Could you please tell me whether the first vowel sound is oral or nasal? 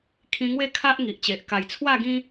nasal